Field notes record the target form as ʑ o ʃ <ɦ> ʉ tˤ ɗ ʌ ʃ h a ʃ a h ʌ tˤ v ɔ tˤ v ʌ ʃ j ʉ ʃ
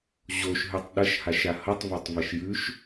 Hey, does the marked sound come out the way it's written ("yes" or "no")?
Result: yes